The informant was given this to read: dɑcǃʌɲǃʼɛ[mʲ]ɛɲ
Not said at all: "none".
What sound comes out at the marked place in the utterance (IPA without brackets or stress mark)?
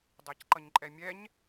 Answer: mʲ